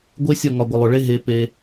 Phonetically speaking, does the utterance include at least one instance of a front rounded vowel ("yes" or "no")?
no